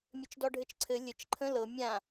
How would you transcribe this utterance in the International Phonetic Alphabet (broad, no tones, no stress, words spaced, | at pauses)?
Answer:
mʲɘt͡ʃdɔɖʱɘt͡ʃǀʰɘ lʲɘt͡ʃ ǃʰə̃ lɤ mʲã